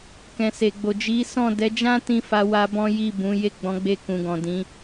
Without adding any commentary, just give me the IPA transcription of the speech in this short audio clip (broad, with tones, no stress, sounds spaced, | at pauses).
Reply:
k ɛ̃˨ s e˨ ɡ͡b o˨ d͡ʒ i˨˦ s ɔ̃˦˨ d ɛ˨˦ d͡ʒ ã˦ t ĩ˧ f a˧ w a˧ b ɔ̃˦ j i˦˨ b ũ˨˦ j e˦˨ ɡ͡b ɔ̃˨˦ ɡ͡b e˧ k ũ˨ ɡ ɔ̃˨ d ĩ˨˦